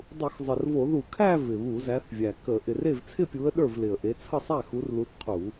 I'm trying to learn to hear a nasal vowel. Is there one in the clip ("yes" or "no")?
no